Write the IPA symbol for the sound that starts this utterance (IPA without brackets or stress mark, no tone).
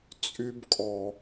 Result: t͡sʼ